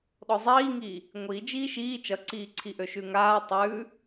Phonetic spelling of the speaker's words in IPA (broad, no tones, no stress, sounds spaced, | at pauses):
ɗ ɔ zˤ iː ŋ iː | ŋʷ i d͡ʒ iː ʃ iː t͡ʃ ʌ ǀ iː ǀʰ i ʔ ø ʃ ʉ ŋ aː tˤ ʉː